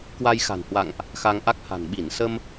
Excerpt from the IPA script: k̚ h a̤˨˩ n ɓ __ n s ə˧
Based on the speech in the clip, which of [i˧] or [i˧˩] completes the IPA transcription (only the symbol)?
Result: i˧˩